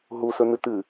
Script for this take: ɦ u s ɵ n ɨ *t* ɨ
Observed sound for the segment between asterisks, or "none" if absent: t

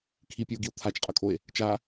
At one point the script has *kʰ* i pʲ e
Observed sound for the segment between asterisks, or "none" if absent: kʰ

